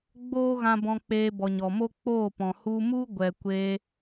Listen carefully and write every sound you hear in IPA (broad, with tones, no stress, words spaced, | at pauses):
ɡ͡boː˦ɣã˧bɔ̃˧ k͡peː˧bɔ˨ɲɔ˨mo˦ k͡poː˦˨pɔ̃˨ hu˧mu˦ ɡʷɛ˨kʷe˧